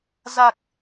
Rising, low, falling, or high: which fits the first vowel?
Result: low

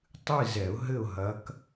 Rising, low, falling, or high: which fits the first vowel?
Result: falling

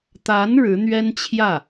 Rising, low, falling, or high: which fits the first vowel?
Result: rising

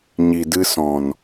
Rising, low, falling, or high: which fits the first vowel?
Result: low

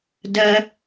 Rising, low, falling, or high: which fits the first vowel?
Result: high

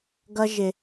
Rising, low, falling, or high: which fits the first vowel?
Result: high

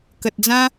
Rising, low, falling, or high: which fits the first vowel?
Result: low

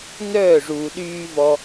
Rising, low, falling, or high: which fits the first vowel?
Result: falling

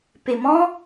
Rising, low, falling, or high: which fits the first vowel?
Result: low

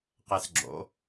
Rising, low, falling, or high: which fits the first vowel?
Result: rising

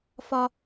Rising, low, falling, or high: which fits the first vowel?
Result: high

